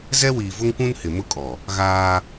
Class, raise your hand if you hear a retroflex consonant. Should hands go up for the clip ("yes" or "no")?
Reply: no